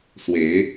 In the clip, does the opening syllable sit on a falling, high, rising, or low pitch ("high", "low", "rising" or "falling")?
rising